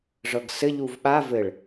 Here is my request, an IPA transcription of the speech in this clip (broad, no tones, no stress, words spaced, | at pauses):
ʐɤɡsɘ ʎuvɓa vɘɭ